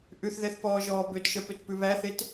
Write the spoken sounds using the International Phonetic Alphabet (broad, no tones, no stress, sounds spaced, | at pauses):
ʔ ʉ θ ð ɛ θ p ɔː ʒ ɔː b ø t ʃ œ p ø t p ʉ β æ θ e t